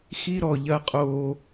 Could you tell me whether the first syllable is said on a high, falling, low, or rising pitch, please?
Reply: high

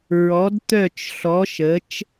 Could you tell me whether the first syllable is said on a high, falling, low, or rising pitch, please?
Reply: rising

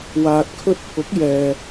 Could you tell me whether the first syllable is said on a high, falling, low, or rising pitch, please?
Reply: low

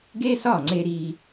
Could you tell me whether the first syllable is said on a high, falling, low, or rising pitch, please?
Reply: high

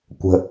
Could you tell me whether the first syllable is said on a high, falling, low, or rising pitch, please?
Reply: low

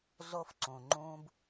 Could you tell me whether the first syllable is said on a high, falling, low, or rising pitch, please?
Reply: high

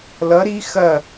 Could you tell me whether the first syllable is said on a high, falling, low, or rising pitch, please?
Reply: rising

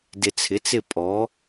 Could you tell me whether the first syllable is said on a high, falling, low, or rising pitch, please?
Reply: low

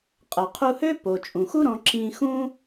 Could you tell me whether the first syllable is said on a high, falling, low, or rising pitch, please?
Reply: low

